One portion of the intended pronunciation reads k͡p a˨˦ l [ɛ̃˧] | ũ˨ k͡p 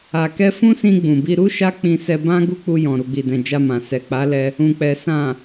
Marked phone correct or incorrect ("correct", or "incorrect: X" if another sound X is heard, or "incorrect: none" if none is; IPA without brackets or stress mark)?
incorrect: ɛ˧